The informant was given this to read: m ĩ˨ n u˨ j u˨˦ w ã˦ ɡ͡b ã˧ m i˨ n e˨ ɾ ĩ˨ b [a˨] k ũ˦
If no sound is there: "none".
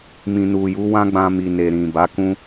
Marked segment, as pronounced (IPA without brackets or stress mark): a˨˦